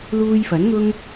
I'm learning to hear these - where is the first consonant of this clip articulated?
tongue tip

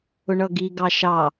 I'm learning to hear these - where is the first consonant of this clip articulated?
retroflex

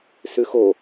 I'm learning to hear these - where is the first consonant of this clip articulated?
tongue tip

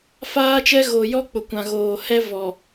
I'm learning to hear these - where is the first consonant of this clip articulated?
lips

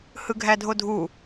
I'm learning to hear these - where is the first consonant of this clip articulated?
throat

